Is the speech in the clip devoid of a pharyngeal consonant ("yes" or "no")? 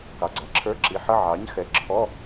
no